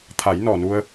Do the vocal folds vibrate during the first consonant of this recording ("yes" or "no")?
no